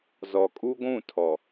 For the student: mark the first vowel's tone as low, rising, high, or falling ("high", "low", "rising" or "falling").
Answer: low